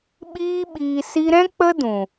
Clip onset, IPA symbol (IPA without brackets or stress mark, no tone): ɓ